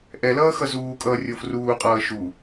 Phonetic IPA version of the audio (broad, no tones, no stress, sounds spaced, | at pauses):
ʔ ɛ l ʌː x ʌ z uː kʼ ʌː rʲ o f r uː qʼ ʌː ʃ u